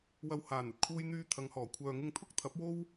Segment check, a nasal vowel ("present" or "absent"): absent